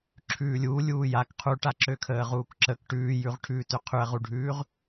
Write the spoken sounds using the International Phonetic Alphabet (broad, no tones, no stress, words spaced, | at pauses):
ǁʰʉːlʲuː lʲuːjak qʰuʈaǁøkʰəː ʁuːkǁək ʈʉːjʉʁʈʰʉːtø qʰʉɐ̯ʁuɖʱʉːʁ